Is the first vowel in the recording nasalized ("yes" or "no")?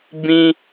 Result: yes